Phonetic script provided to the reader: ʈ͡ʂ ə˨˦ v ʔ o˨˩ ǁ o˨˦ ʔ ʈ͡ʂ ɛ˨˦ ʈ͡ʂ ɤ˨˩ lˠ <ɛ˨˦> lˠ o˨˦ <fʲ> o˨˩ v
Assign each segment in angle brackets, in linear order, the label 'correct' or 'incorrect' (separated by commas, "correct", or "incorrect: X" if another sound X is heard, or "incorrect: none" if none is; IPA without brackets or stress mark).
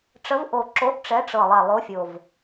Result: incorrect: ɛ˨˩, correct